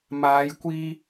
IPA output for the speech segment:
m aː˨˧ j kʷ iː˧

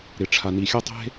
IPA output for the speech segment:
ɾ ɪ˨ ʈ͡ʂʰ a˨ n i˨ xʲ a˦ tˤ e̤˦

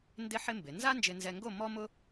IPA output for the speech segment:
n d ɪ˥ ħ ɪ˥ m b ɪ˩˧ n z a˥ n d͡ʒ ɪ˧ n z ɛ˧ ŋ ɡ o˥˧ m ɔ˥ m ʊ˥

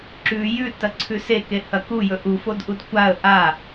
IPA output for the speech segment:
ǁ ʉ j ʉ t ɐ ǀʰ ʉ s e k e h ɐ k u j ɵ ʔ u f o d ʔ u d kʷ a ə̯ ʔ a

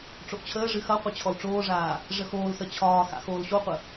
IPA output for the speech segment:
ʈ͡ʂ o ʔ t͡ɕʰ əː ʐ ɨ x ɐ qʷ ə t͡ɕʰ ɔ l ʈ͡ʂ oː ʐ aː | ʐ ə x oː l s ə t͡ɕʰ ɒː x a̰ x oː l ɕ o qʷ ə

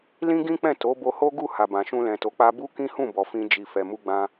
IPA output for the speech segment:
l ĩ˦ ɡ ĩ˦ k͡p ɛ̃˦˨ t o˨˦ b o˧ h o˦ ɡ u˦˨ h a˨ b ã˨ ʃ ũ˧ l ɛ̃˨ t o˨˦ k͡p a˧ b u˦ k ĩ˦ h ũ˦˨ b ɔ˨ f ĩ˧ d͡ʒ i˨ f ɛ˨ m u˧ ɡ͡b ã˧

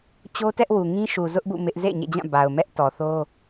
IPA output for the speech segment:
t͡ɕ o˦ t ɛ˦ ʔ w u˨ ŋ ĩ˦ ʃ u˨ z ʊ˦ ʔ b ṵ˦˨ m ɪ˦ ʔ z ḛ˦˨ ɪ̯ ɲ ḛ˦˨ d͡ʑ ã˦˨ b a˨ ʊ̯ m ɛ˦ ʔ t ɔ˨ θ o˦

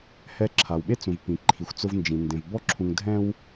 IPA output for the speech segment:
h ɛ˨ ǁʰ a˩ w ɓ e˦ t͡s ũ˩ v p ĩ˩ ǃʰ i˩ xʷ t͡s ʊ˨ v n d͡ʒ ĩ˩ n d ẽ˩ v b ɔ˥ ǁʰ ũ˨ ŋ dʱ ɛ̃˥ w

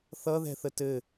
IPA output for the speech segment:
θ ʌ ð ɛ̤ θ ə t ɘ

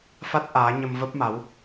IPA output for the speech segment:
f a˦˥ t̚ ʔ aː˨˦ ɲ ə˧ m v ə˦˥ p̚ m a˨˦ w

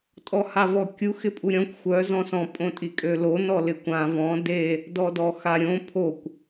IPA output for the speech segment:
tʼ ɔ h a v ɔ kʲ u x ɪ pʼ u ɾʲ ɔ̃ kʷ xʷ œ z ɔ̃ s ɔ̃ pʼ õ tʼ i kʼ ø l o n ɔ l ɪ kʷ ã v ɔ̃ d e | d ɔ d ɔ x a ɾʲ õ pʰ o kʷ

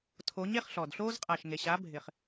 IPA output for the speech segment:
tʰ o˨˦ ɲ e˧ χ ɬ ɔ˨ d ɬ oː˦ z qʼ a˨ ʃ ŋ e˨ ɕ a˨˦ bʱ ɪ˨ χ

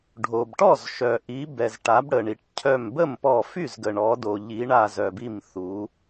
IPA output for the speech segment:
ɖʱ o˩ b ʈ ɔ˥˩ z ʃ œ˩ ʔ i˩˧ b ɛ˩ z ʈ a˩˧ b ɽ ə˩ ɳ i˩ ʈ cʰ œ˧˩ m b ə˥˩ m p ɔ˧˩ f y˥˩ z ɡ ə˩ ɳ ɔ˩˧ d o˩ ʎ i˩˧ ɳ a˧˩ z œ˩ b i˧˩ m θ u˩˧

